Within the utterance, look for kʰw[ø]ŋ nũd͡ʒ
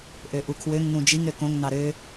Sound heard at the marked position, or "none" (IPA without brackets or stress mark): ø